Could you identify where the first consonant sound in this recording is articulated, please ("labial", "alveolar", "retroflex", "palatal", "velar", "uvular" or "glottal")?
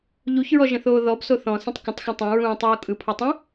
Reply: palatal